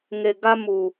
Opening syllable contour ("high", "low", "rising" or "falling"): low